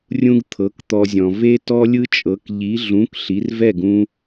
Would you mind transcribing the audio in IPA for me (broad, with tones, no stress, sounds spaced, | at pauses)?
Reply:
rʲ ũ˥ ɡ t̪ʰ ɤ˩˥ k t̪ ɔ˧ zʲ ɔ̃˩ v e˥ t ɔ˥ lʲ ɯ˥ t͡ʃʼ ɤ˩˥ k ʎ i˩˥ ɮ ũ˩˥ k ɬ i˩˥ r v ɛ˥˩ ɡ ũ˧